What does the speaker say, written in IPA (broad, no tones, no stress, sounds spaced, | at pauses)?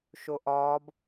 ʃ o ʔ ɒː b